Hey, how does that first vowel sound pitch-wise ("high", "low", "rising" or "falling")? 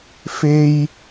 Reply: high